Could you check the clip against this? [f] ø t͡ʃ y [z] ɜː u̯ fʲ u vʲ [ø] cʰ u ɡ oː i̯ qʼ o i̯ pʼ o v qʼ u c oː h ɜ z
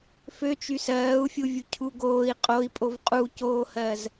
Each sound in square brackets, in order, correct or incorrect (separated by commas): correct, incorrect, incorrect